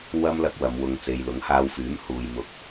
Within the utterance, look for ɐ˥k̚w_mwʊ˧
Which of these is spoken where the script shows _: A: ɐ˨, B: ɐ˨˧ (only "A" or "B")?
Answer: B